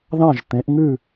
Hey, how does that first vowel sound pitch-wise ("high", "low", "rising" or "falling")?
falling